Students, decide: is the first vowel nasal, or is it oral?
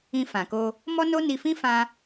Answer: nasal